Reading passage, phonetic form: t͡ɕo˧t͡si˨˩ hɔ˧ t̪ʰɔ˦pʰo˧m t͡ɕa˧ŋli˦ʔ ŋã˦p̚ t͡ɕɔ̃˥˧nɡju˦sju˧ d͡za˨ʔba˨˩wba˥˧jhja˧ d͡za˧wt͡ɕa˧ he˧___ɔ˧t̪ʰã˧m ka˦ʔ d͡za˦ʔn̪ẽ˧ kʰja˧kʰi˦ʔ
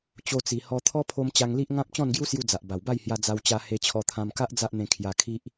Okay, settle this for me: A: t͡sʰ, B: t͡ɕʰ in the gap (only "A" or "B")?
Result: B